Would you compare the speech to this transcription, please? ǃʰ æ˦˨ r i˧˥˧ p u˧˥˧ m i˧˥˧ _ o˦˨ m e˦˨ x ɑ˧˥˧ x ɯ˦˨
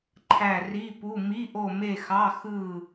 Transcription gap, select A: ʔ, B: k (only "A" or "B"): A